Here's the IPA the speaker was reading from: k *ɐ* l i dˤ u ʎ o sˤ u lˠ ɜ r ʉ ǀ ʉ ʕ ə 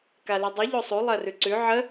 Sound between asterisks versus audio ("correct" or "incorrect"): incorrect